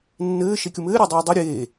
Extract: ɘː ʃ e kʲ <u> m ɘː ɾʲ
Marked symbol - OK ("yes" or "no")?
yes